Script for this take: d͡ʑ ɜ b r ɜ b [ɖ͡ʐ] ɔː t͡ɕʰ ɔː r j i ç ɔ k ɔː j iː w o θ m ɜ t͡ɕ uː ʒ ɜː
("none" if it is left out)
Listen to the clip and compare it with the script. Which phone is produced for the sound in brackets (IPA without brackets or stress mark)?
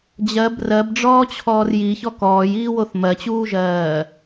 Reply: ɖ͡ʐ